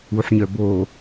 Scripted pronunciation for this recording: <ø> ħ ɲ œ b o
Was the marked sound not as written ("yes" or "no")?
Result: yes